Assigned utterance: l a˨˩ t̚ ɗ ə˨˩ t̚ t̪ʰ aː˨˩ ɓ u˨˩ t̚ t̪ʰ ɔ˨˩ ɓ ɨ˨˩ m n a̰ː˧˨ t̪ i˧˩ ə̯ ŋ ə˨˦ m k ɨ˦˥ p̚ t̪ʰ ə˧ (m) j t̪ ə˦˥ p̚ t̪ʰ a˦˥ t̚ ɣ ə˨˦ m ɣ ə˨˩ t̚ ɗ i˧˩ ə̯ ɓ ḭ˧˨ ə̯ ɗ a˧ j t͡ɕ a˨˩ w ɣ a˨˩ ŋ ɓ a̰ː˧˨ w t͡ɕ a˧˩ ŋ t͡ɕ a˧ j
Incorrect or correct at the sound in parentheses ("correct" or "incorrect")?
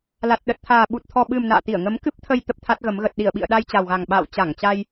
incorrect